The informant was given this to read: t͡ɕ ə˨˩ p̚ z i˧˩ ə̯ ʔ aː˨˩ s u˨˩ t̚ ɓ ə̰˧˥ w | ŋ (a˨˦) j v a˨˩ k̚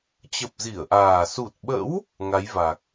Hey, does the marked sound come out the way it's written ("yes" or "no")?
yes